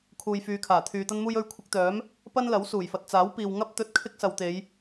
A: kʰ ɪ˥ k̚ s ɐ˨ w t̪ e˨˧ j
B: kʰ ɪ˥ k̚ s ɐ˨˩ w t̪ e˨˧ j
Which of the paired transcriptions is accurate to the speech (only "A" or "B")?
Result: A